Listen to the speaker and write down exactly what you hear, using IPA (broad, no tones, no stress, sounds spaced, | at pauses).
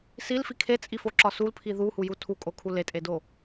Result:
s i l f i kʰ e t͡sʼ i f o ǁ ɒ s u l pʰ i ð u h u j u tʰ u kʼ o kʰ u l e tʼ e d o